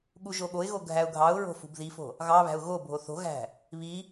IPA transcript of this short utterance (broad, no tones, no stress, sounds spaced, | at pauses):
ɠ u ʒ o ɠ o ɪ̯ ɣ o ɡʱ æ ʊ̯ ɡʱ ɑ ʊ̯ ɹ o̤ f ṳ b ð i f o̤ | ɣ ɑ β æ̤ ʊ̯ ɣ o bʱ o θ o̤ ɣ æ̤ | β i